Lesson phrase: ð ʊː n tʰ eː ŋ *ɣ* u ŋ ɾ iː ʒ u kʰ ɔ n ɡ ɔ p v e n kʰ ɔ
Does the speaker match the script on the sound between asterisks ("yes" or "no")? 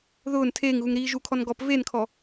yes